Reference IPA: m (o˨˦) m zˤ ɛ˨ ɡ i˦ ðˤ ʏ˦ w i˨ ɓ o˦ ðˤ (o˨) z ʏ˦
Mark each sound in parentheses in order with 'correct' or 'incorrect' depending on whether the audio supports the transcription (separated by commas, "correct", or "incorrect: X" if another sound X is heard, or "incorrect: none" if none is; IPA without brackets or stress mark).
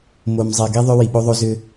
incorrect: o˨, incorrect: o˦